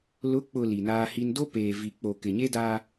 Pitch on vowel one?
rising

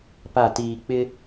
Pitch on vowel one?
falling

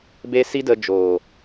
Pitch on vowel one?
high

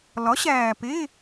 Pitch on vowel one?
rising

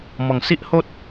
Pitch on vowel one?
low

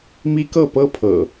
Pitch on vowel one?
high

